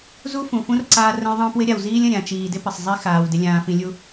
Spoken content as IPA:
z u˦ f ũ˨ f ũ˦ r ǀ aː˦ r ə̃˦ j ðˤ ə̃ː˦ p w ɪ˦ ɾʲ a˨ w z iː˦ lʲ ə̃˦˨ ɾʲ ã˨ t͡ʃ iː˨ d ɪ˦ p ɪ˨ sˤ zˤ i˦ x aː˨ w d ɪ˨ lʲ ãː˨ f ĩ˨ lʲ u˦

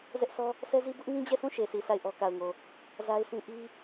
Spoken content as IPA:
z ɛ˦ ʔ sʰ ɔ˦ | s ɛ˦ z i˦ b ʊ˦ ʔ ŋ ĩ˦ d͡ʑ ɛ˦˨ sʰ ũ˦˨ ʃ e˨ s i˨ s a˦˨ ɪ̯ ʔ ɔ˦ k a˨ ʊ̯ ŋ o˨ | z a˦ ɪ̯ sʰ ĩ˦ ʔ i˦

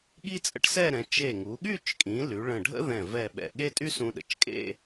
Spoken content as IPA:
ɠ i˥ t͡sʼ ə̰˥ ʈ s ɛ˥˧ ɾ ɛ̃˩˧ t͡ʃ e˧˩ ŋ u˩˧ ɠ y˥˧ t͡ʃ kʼ ĩ˩˧ l y˩˧ ɭ ə̃˧˩ ɖʱ ə̰˥ ð ɛ̃˧˩ v ɛ˧˩ ɓ ɛ̰˧˩ ɠ e˥ tʼ y˥ s ũ˧ ɗ ə̰˧˩ t͡ʃ kʼ ḛ˥˧

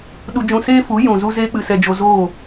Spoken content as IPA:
ɗ u˧ d͡ʒ ũ˧ s eː˦ f u˨˦ j ũ˨ z u˧ z eː˦ k͡p ɨ˧ s ɛ˧ d͡ʒ o˧ z oː˦˨

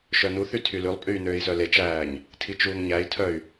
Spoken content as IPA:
ʃ œ n u θ y tʰ y l ʉ lˠ pʼ yː n øː i̯ s œ l e t͡ʃ æː ɲ | tʰ i t͡ʃ uː ŋ ɲ æ i̯ tʰ œ y̯

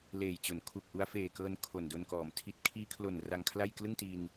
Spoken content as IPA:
l eː˨˩ j t͡ɕ o˩˦ n kʰ u˨˩ k̚ ʔ u˧ a̯ f eː˨˩ k ɤː˧ n kʰ o˨˩ n d o˧ n k ɔː˩˦ m tʰ i˨˩ t̚ kʰ iː˧ kʰ l o˨˩ n r a˧ ŋ kʰ l a˥˩ j k l ɯ˥˩ ŋ t i˧ n

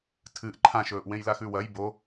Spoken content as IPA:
tʰ ɨ ʔ ǃʰ ã ʃ ɵː ʔ w ẽ j l a x ʉ w ɐ j b o

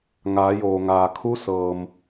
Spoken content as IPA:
ŋ aː˩˧ j oː˩ ŋ aː˩ kʰ u˧˥ s ɤː˩ m

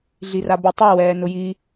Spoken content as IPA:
ɮ i r a b ʊ tˤ ɛ w ɛː n ʊ j i

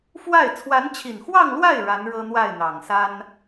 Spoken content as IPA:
f w a˥˩ ɪ̯ t͡sʰ w a˧˥ n t͡ɕʰ i˨˩ n x w ɑ˥˧ ŋ l w a˥˩ ɪ̯ ɻ a˧˥ n ɻ ɤ˥ n̪ w a˥˩ ɪ̯ n̪ ɑ˨˩ ŋ s a˥ n

